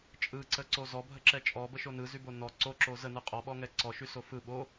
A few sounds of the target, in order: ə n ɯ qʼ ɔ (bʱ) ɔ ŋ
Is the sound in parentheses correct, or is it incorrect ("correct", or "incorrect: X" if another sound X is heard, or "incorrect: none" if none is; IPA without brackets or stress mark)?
incorrect: ɓ